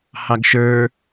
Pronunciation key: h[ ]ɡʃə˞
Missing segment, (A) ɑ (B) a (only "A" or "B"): A